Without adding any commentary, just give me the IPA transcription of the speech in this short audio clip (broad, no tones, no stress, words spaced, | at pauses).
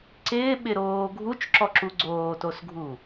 ǀɪːɓɪɾoː ɡʱut͡ʃǁɔǁu ɡ͡ǀoːtosɡʱu